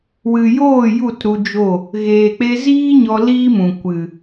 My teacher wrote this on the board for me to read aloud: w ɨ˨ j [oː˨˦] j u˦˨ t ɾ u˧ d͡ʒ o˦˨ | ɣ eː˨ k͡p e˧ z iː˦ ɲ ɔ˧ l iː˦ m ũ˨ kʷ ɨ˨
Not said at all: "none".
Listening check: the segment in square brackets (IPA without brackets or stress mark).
oː˦˨